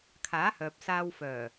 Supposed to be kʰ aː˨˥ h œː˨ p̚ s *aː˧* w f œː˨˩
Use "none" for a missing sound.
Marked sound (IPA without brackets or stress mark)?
aː˧